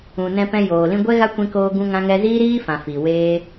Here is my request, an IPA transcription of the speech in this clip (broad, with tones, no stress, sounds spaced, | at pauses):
ũ˨ n ɛ̃˧ p ɛ̃˧ j oː˨ l ĩ˧ ɡʷ ɛ˦ ɣ a˦ kʷ ĩ˧ k oː˧ ɡ ũ˧ ŋ ã˧ ŋ ɛ˧ z iː˦ ɾ iː˦ f ã˨ f i˨ w eː˦